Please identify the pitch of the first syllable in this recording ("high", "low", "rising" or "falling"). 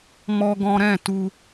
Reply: high